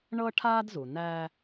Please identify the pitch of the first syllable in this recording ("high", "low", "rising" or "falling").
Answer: high